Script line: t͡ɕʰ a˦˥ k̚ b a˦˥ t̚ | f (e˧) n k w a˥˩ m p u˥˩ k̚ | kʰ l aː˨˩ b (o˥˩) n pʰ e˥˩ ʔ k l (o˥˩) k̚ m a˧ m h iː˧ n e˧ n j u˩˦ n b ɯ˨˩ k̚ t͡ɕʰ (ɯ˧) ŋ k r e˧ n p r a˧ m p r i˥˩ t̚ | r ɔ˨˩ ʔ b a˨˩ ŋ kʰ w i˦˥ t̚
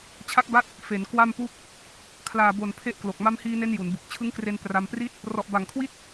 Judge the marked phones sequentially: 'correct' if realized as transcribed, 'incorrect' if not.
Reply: incorrect: e˩˦, incorrect: o˨˩, incorrect: o˨˩, incorrect: ɯ˦˥

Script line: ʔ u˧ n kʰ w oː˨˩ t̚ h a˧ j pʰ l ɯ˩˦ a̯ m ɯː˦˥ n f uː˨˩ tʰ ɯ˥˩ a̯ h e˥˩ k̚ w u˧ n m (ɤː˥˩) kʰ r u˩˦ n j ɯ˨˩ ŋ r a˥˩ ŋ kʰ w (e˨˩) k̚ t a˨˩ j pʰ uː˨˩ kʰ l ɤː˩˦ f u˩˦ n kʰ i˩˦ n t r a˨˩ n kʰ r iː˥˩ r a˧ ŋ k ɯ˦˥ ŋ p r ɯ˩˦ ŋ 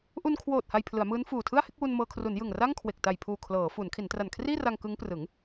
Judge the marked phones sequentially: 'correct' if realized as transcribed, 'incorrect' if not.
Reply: incorrect: ɤː˧, correct

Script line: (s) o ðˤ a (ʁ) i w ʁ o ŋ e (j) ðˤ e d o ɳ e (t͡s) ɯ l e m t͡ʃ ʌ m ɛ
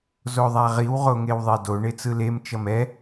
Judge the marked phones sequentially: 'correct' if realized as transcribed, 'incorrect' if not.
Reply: incorrect: z, correct, incorrect: w, correct

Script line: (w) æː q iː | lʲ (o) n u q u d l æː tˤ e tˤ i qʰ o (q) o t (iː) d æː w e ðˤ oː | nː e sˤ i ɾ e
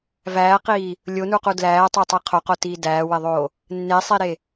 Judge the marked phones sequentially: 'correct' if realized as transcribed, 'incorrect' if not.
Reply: incorrect: v, correct, correct, correct

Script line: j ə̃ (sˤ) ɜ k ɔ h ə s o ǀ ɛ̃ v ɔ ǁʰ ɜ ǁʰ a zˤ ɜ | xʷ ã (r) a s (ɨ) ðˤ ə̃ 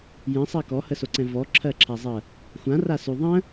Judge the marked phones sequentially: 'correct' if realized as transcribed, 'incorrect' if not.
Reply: correct, correct, incorrect: ʉ

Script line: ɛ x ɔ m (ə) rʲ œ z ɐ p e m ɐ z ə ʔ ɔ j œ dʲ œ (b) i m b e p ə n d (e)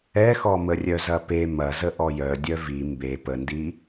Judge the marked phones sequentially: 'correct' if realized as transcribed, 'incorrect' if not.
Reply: correct, incorrect: v, incorrect: i

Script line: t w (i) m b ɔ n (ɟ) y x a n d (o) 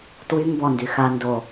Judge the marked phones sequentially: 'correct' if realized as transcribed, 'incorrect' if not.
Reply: incorrect: y, incorrect: d, correct

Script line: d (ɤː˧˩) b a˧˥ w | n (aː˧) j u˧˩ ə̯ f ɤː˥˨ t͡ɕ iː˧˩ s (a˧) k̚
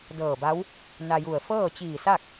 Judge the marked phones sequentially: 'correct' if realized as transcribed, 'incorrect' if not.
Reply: correct, incorrect: a˧, incorrect: a˥˨

